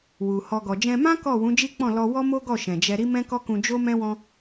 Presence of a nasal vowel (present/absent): present